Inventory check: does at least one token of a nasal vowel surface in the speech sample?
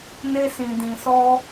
yes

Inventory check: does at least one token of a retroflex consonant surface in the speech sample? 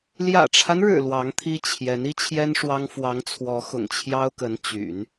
yes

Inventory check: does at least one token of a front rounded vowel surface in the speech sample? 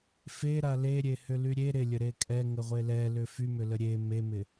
yes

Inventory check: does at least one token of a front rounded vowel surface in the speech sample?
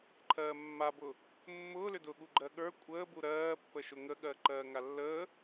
yes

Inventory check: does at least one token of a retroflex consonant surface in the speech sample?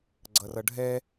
yes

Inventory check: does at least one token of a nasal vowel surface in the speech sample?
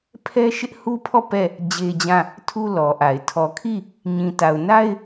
yes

